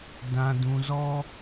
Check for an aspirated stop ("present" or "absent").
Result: absent